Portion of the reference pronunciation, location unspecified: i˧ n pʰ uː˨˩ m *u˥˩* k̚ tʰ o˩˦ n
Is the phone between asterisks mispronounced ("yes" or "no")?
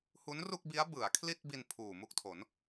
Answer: no